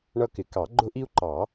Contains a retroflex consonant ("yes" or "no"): yes